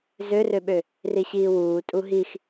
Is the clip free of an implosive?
no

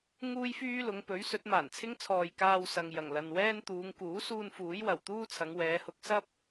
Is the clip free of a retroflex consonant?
yes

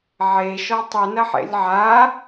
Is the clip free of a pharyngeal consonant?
no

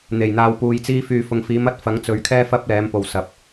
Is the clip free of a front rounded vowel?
no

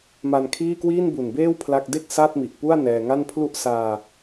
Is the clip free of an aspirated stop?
no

